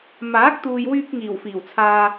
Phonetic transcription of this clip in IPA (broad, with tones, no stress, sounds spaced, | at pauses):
m aː˨˥ k̚ t̪ uː˨ j w yː˧ k̚ ŋ iː˨˩ w f iː˨˩ w t͡sʰ aː˧